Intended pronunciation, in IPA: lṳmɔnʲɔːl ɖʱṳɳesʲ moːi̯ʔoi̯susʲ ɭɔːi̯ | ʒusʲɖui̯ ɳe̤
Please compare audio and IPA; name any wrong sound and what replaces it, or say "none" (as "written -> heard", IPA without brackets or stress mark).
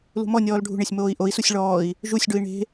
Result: none